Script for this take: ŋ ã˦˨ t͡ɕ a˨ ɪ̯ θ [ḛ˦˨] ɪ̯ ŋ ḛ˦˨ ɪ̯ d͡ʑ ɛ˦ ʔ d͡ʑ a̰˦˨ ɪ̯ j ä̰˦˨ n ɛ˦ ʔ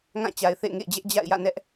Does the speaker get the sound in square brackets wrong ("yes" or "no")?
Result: no